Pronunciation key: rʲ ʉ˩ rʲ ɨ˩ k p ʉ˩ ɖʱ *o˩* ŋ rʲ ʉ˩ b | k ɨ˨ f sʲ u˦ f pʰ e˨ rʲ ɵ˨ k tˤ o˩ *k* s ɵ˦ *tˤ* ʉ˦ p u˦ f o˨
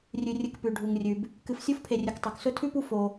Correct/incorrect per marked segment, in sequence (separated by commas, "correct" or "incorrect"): incorrect, correct, incorrect